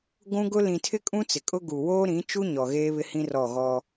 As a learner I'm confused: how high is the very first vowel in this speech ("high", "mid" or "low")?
high